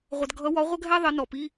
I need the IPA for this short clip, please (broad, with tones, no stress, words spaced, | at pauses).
ʁʷʌ˨dɡʱʌ˧˥wɒ˧˥ ʁʷə˥ɡʱæ˥ ðˤɪ˧˥nɔ˨pi˧˥˧